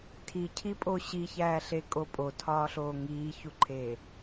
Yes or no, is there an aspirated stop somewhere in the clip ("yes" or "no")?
yes